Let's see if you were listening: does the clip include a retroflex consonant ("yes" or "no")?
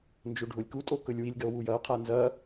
yes